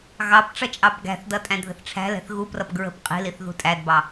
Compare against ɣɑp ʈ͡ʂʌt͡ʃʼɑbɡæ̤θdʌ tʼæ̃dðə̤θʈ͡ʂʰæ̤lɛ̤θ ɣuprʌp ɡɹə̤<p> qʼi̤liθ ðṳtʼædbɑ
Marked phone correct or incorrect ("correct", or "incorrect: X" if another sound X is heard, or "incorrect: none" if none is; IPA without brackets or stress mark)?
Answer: correct